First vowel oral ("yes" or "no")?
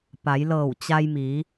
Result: yes